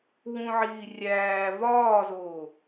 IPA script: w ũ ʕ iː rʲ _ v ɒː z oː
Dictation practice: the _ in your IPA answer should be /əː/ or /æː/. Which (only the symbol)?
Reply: æː